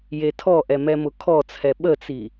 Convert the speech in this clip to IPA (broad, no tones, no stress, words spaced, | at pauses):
jetʰɔʔɛ mɛmʊkʰɔt͡sʰɛ ɓət͡si